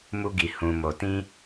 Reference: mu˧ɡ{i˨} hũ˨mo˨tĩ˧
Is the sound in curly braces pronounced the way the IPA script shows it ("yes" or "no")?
yes